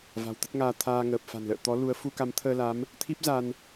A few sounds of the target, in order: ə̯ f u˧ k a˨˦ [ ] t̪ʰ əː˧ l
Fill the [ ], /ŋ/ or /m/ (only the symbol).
m